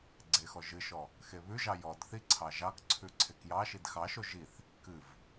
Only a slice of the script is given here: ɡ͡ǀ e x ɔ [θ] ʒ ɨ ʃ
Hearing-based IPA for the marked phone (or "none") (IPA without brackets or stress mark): none